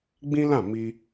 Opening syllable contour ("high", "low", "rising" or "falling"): high